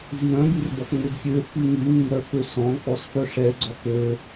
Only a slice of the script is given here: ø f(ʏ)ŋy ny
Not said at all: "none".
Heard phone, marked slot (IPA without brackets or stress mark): y